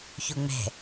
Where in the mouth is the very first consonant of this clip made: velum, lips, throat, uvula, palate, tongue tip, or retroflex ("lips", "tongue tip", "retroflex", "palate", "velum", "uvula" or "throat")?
palate